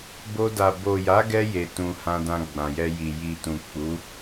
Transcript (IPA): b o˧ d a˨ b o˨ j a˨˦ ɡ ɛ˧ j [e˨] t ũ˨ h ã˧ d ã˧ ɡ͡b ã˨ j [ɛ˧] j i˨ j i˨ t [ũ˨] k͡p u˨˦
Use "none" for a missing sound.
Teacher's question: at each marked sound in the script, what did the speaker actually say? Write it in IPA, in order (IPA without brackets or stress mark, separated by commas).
e˨, ɛ˧, ũ˨